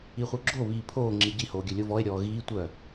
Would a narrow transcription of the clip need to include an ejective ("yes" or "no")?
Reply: no